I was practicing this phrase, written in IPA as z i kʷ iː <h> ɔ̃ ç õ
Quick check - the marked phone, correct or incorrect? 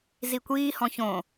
correct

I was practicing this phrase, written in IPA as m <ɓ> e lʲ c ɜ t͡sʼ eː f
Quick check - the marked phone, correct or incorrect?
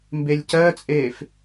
incorrect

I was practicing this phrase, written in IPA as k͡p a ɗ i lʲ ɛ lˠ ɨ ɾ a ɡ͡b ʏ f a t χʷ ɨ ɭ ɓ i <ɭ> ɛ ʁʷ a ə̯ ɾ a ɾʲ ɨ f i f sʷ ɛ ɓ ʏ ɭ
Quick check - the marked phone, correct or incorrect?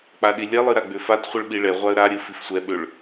correct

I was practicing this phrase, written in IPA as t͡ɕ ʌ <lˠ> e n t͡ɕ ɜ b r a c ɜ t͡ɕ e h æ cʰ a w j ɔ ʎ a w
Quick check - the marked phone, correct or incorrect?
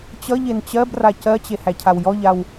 incorrect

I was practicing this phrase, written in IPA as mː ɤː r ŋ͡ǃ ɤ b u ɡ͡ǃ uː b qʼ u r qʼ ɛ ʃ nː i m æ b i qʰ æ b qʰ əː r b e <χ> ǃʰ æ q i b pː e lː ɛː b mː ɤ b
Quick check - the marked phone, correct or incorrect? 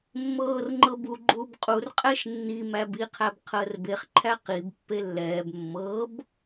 correct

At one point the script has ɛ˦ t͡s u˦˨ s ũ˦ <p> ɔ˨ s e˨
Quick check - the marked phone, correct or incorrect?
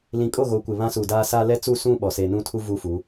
incorrect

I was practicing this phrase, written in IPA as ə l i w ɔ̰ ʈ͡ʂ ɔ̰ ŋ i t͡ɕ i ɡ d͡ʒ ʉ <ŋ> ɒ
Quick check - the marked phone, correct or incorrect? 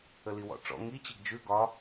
incorrect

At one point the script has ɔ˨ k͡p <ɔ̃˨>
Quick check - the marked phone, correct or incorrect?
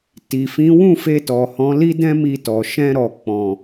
correct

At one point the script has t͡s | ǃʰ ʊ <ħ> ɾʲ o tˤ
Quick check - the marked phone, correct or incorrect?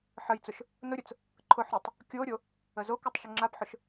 correct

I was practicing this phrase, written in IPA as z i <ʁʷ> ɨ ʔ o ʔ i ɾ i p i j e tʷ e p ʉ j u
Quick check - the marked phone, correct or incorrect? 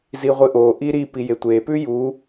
correct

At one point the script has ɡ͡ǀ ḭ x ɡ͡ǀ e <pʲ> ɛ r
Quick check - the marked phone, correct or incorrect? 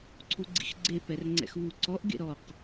incorrect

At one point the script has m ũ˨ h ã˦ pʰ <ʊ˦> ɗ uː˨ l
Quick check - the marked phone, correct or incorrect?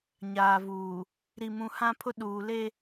correct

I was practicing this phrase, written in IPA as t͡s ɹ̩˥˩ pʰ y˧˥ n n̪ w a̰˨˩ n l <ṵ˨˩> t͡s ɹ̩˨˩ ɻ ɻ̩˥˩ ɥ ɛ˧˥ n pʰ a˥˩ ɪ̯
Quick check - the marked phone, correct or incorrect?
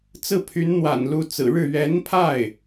incorrect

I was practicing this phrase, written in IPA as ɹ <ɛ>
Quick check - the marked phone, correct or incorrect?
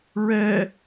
correct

